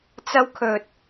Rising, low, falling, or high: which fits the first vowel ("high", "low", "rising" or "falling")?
high